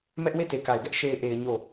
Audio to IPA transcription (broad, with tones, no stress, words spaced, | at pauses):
mɛ˦ʔ we˦˨te˨ka˨ɪ̯ɡɛ˦ʔ ʃe˨ɪ̯ʔe˨ɪ̯ ɲo˦˨